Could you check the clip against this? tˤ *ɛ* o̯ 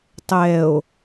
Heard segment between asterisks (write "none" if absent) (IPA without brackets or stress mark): ɛ